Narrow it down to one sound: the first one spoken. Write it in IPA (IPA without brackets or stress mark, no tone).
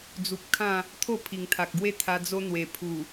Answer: d͡z